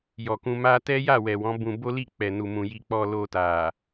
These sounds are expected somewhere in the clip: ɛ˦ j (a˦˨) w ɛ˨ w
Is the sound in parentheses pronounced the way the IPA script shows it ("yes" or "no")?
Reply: yes